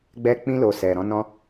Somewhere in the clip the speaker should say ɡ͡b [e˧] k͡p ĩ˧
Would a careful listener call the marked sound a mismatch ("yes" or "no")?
yes